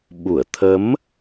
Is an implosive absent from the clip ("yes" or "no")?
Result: no